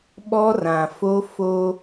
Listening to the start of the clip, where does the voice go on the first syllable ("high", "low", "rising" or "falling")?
high